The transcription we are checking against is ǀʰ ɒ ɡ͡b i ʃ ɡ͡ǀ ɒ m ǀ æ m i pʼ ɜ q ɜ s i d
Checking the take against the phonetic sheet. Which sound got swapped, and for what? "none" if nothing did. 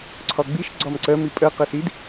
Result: æ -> ɜ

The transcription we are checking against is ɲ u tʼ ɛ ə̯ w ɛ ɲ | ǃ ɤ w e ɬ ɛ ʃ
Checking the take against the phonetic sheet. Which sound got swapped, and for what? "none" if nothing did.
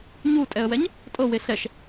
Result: ǃ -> tʼ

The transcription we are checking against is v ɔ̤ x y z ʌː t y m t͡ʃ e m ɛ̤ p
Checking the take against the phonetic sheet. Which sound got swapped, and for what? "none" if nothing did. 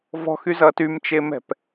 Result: none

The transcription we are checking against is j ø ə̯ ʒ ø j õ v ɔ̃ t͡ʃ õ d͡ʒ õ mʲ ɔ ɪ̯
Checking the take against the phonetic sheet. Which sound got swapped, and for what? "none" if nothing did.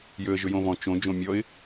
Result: none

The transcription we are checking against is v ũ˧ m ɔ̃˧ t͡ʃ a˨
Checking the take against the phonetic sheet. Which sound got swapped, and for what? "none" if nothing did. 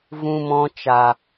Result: none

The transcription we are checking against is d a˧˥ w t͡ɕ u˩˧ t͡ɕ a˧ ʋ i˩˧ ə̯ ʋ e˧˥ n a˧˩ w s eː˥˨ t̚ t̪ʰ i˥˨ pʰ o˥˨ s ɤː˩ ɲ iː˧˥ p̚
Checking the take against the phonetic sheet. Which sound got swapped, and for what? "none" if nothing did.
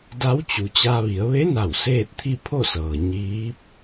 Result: none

